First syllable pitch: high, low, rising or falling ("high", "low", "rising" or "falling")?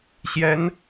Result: rising